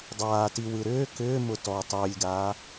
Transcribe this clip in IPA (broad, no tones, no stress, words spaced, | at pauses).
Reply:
dˤaːtiwɯ ɾʏː kʏːmʊ tɔ tˤʏːlʲɡaː